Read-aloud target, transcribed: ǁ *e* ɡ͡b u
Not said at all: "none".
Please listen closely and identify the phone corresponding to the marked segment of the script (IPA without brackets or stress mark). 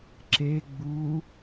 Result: e